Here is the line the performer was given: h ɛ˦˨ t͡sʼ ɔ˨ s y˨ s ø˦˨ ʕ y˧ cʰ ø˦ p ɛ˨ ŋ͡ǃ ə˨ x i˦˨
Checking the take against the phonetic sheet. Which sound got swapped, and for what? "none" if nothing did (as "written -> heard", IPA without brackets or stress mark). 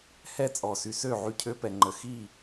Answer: none